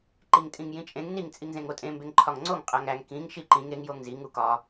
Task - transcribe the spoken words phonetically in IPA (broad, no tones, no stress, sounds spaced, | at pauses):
ǃ i ŋ tʼ ĩ ŋ j ĩ t͡ʃʼ ẽ ŋ n i ŋ t͡sʼ i ŋ z ẽ ŋ o tʼ ẽ m b e ŋ ǃʰ ɒ ŋ ŋ͡ǀ o ŋ qʼ æ ŋ æ ŋ k ĩ ŋ ʃ i ǃ ĩ ŋ e ŋ j o ŋ z i ŋ u k ɒ